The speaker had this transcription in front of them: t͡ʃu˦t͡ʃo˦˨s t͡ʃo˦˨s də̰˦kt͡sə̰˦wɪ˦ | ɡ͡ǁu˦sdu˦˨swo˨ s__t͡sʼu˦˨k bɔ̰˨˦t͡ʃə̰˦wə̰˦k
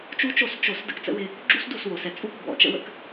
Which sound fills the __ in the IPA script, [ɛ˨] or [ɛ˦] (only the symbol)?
ɛ˨